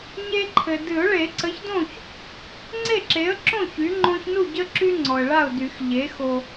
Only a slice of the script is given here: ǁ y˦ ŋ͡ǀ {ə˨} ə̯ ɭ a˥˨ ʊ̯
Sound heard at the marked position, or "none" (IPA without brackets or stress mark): ɔ˨